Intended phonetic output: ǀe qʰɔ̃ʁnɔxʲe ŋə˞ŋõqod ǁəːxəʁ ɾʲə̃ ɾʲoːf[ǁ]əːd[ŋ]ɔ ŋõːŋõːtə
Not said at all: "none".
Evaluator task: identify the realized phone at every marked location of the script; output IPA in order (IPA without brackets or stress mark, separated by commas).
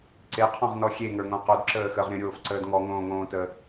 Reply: ǀ, ŋ